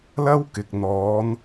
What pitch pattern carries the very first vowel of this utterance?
high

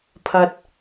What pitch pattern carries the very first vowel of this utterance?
high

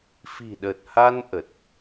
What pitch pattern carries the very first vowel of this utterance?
low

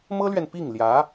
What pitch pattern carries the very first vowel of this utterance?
high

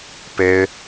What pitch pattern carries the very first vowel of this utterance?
high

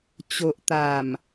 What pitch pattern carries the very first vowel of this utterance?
low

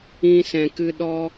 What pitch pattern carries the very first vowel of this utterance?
high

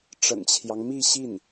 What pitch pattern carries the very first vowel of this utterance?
low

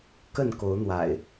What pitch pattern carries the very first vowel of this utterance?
falling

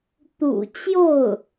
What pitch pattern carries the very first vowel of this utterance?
low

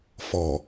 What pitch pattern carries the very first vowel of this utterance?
low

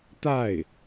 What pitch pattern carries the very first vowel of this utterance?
falling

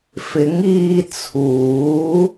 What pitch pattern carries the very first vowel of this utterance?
rising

